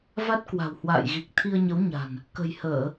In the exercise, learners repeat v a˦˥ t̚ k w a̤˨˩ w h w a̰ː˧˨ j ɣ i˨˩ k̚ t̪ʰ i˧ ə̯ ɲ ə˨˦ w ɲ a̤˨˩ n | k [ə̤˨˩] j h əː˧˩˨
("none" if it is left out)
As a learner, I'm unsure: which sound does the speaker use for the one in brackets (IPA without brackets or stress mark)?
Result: ə̤˨˩